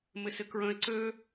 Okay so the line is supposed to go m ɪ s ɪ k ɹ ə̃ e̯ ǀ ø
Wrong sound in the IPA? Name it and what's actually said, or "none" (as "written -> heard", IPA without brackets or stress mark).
none